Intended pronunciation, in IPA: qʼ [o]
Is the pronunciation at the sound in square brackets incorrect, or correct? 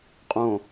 incorrect